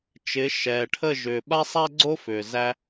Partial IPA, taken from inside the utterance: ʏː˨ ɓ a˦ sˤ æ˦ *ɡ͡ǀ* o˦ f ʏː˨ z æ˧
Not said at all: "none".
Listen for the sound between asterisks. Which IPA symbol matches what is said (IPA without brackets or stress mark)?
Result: ɡ͡ǀ